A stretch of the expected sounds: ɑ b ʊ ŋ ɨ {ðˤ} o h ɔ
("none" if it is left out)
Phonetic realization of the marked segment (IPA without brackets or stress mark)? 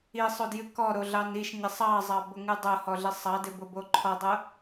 dˤ